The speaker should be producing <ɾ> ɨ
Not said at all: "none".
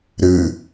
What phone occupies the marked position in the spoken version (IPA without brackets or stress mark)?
ɾ